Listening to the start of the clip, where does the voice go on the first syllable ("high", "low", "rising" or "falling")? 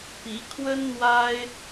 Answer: rising